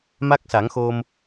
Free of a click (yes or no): yes